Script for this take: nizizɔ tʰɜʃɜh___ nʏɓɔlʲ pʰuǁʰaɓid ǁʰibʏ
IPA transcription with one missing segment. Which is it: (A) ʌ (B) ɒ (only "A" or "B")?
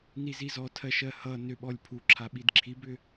A